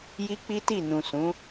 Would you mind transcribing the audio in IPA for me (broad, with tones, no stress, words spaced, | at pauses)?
ji˦k͡pi˦ti˦˨ nũ˨ sũ˨˦